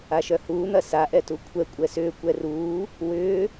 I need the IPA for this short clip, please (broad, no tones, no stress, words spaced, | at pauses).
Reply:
aʃœhuːn̪ɐ saʔɛ tukʷʰɛkʷʼɛ sʏːkʷɛ ruː | wʏː